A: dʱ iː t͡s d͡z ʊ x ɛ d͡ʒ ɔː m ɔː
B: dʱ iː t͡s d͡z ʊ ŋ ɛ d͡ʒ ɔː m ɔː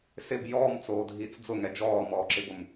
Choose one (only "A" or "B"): B